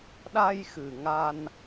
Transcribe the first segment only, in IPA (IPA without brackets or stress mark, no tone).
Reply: ɗ